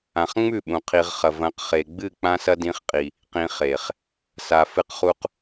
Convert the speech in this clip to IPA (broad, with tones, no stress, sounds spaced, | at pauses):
ã˨ χ ŋ͡m ʉ˦˨ ɓ ũ˨ qʰ i˨ ʁ χ ɐ˨ v ɐ̃˨˦ q χ e˨ ɡ͡b ɨ˦˨ k͡p ã˦ s ɐ˦ d ĩ˨˦ χ qʼ i˨ | q ĩ˨ χ e˨ χ | s a˨ f ɨ˦ q χ u˦ q